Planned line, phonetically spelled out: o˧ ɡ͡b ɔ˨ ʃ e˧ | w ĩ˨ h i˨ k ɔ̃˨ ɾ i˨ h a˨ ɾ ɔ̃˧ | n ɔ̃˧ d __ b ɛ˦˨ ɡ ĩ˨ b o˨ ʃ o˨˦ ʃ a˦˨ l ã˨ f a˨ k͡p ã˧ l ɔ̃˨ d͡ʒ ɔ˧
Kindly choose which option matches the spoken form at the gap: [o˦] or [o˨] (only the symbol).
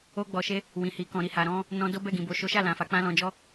o˦